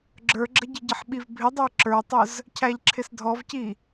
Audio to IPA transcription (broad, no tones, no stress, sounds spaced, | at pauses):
ɡ͡ǁ ə˞ ɡ͡ǁ ə ɟ ɪ ɟ ɪ ħ ɓ i v bʱ ɪ dˤ ə˞ ǁ ə˞ tˤ ʊ z | cʰ æ ʎ ǁʰ ɪ s dʱ ɔ v c i